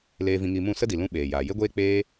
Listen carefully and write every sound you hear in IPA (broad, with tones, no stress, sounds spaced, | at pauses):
l eː˧ v ĩ˧ ŋ i˧ m ũ˦˨ s ə˦ d i˨ l ũ˧ ɓ eː˨ j aː˨ j e˦ ɡʷ eː˦ k͡p eː˦